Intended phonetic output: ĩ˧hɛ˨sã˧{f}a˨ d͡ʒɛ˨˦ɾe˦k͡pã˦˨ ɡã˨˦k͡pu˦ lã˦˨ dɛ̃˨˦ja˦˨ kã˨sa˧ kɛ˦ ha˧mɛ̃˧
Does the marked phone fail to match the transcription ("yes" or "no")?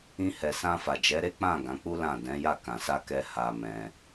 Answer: no